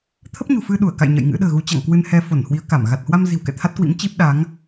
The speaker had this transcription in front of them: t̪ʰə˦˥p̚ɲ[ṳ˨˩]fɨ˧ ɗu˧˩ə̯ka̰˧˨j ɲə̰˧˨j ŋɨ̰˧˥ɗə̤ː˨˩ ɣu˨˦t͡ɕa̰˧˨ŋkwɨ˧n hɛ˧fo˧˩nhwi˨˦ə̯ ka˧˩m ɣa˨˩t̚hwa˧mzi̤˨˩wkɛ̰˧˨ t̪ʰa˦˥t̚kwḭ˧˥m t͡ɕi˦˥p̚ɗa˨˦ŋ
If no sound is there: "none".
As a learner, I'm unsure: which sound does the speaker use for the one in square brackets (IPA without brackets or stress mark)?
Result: ṳ˨˩